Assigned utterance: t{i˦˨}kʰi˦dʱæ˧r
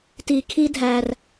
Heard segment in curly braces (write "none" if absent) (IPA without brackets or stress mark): i˨